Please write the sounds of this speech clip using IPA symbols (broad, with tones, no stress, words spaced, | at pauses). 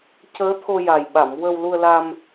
cəː˧˥t̪ʰo˧ ja˨˩jɓa˨˩˨m wə˧wlu˧ə̯la˧m